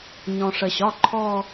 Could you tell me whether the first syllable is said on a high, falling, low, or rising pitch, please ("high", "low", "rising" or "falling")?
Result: low